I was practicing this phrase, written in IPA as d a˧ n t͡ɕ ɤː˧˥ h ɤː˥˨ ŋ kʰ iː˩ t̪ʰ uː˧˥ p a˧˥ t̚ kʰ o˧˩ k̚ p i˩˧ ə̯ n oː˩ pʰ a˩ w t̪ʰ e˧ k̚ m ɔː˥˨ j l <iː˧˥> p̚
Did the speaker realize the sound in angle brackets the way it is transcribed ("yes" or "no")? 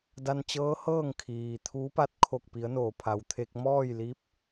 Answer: yes